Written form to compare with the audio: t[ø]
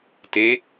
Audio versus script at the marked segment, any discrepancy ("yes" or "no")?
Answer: yes